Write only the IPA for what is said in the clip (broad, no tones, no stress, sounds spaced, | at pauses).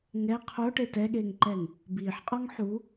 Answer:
ŋ ɛ qʰ o ʈ e t ɛ ɠ eː ŋ ǃ ɛ ŋ | b iː ħ qʼ ɔ ŋ ħ u